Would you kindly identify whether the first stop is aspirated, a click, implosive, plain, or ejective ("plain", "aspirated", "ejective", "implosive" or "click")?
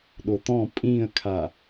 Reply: implosive